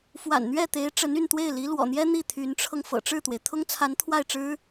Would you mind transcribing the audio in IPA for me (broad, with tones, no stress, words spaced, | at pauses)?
fwa̰˨˩nn̪ɥɛ˥˩t̪e˧˥ɪ̯ ʈ͡ʂə˧˥ny˥˧nt̪we˥˩ɪ̯ li˧˥ lwɔ̰˨˩n̪jɛ˥ n̪i˥˩t̪ʰy˧˥nʈ͡ʂʰɤ˧ŋ fɤ̰˨˩ʈ͡ʂɻ̩˥˩t̪we˩ɪ̯ t̪ʰʊ˥ŋt͡sʰa˧˥n t̪ʰwa˥˩ɪ̯ʈ͡ʂɻ̩˥